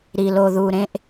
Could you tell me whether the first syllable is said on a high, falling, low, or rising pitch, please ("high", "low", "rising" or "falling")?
low